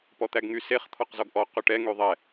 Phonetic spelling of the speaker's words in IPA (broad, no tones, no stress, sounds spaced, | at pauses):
p ɔ t̪ æ ɡ ŋ y s e χ t̪ʰ ɔ q z ɔ ɡ ʔ ɔ q ø ʈ ɛ ŋ y ðˤ ɛ